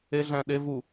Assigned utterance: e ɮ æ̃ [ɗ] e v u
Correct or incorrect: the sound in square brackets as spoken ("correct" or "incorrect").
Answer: correct